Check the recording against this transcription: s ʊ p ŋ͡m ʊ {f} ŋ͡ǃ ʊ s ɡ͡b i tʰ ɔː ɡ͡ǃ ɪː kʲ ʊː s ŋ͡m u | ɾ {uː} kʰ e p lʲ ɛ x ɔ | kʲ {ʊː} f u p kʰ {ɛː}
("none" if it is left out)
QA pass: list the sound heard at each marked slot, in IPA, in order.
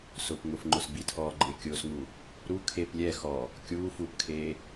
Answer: f, u, uː, eː

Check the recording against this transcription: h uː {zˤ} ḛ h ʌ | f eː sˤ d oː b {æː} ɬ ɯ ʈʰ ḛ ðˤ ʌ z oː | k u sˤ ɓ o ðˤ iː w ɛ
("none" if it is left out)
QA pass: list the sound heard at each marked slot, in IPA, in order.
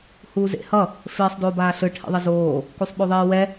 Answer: z, aː

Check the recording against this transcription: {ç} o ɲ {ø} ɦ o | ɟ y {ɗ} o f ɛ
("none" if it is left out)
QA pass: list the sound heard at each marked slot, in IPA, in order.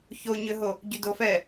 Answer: ç, ø, d

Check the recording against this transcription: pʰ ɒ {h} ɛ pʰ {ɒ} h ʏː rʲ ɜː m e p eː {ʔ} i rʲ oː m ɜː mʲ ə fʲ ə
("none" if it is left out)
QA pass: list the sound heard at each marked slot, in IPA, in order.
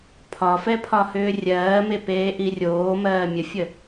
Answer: f, ɒ, ʔ

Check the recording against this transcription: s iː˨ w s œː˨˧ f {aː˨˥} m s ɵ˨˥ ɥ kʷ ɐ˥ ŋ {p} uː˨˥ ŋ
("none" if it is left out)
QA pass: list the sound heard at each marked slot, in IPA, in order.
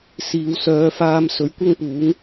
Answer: aː˧, p

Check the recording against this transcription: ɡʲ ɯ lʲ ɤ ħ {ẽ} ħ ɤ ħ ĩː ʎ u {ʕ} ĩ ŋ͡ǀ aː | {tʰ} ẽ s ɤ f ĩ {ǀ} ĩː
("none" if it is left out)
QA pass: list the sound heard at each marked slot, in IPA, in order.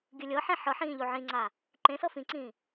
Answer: ẽ, ʕ, ǃ, ǀ

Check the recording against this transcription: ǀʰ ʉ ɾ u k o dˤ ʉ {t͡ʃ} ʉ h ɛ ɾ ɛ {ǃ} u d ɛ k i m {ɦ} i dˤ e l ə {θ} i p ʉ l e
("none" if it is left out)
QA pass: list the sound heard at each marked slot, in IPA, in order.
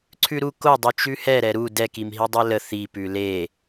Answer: t͡ʃ, ɾ, ɦ, θ

